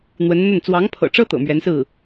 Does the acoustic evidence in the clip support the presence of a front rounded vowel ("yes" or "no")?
no